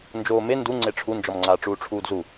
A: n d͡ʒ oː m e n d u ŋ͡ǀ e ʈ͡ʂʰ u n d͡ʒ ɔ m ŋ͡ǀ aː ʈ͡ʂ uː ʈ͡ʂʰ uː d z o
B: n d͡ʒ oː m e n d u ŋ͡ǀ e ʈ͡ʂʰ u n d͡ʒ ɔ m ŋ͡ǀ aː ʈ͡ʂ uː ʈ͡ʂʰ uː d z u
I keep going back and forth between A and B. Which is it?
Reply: B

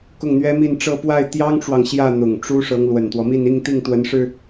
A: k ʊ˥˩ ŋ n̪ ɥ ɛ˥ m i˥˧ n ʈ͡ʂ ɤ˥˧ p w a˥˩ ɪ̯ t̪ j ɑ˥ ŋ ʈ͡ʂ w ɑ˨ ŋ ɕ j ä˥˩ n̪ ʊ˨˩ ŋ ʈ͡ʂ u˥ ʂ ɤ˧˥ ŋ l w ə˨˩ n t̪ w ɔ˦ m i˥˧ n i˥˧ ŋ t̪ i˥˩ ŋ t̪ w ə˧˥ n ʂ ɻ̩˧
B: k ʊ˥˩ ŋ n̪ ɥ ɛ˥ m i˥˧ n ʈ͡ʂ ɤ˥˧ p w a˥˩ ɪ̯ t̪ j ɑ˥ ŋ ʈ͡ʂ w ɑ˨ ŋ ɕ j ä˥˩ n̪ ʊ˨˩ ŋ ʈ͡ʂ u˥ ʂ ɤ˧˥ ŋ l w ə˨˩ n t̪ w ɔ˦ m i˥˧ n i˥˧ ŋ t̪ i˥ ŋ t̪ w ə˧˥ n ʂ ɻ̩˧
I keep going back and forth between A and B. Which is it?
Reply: A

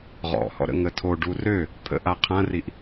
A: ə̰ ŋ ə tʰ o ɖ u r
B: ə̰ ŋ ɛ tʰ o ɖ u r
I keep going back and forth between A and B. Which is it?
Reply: A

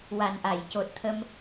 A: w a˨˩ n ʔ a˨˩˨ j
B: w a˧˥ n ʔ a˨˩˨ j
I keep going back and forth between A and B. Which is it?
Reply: A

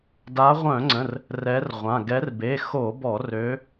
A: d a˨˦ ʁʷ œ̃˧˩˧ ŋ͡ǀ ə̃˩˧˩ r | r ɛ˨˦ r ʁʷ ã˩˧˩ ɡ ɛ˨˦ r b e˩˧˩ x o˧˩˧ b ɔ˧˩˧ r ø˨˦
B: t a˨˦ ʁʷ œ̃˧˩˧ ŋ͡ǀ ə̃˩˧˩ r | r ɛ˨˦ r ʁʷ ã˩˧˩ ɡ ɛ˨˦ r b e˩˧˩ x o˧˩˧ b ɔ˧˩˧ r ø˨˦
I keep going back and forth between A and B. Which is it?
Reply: A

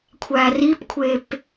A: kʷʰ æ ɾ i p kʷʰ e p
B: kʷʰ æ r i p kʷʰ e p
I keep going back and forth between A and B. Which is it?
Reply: B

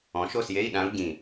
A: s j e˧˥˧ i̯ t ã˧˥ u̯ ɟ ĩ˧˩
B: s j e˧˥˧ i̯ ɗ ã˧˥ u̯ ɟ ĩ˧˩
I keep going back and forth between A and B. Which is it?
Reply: B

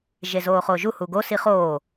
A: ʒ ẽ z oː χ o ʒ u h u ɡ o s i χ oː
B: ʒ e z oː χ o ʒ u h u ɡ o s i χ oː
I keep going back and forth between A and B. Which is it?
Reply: B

